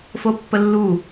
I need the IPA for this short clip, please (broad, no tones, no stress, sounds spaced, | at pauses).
f o pː ə lː u